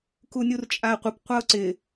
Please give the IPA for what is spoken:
kunʲurt͡ʃʼaə̯qʷɪp qʷaʊ̯ǀɪ

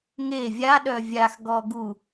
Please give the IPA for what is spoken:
ŋe vʲaɗœ vʲaxɡɔ ɡu

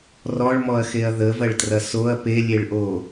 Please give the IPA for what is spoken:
rɔɭmɔɐ̯xeɐ̯ ðəvɐɭtrɐ soɐ̯ pelʲeɭʔo

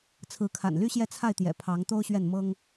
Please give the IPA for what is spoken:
t͡sʰɹ̩˧˥kʰa̰˨˩nly˥ɕjɛ˥˧ t͡sʰa˥˩ɪ̯t̪jɛ̰˨˩ pʰɑ˧˥ŋt̪o˥ʊ̯ɕɥɛ˥˩n mɤ˥ŋ

